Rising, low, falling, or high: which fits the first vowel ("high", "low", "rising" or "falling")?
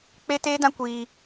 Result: high